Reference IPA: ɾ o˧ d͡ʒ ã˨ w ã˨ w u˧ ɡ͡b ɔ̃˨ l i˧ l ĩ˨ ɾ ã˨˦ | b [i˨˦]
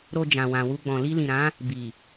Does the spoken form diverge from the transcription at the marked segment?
yes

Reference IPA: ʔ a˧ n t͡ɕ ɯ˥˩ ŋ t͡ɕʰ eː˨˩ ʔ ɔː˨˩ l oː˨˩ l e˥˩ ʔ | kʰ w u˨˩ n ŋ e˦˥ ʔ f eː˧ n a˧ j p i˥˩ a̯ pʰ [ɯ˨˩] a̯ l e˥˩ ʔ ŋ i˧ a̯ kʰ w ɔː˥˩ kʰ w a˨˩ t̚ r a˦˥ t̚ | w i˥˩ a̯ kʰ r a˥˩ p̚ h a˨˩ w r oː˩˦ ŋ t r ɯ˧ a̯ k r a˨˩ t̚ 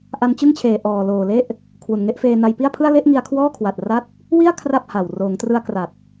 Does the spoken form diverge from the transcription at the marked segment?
yes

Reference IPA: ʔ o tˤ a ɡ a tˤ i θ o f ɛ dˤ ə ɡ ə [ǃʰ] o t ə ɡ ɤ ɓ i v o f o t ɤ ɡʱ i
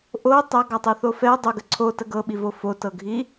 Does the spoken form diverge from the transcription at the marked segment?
yes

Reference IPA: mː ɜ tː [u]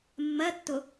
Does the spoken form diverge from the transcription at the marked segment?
yes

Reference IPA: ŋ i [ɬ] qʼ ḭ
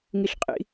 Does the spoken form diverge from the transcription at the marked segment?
no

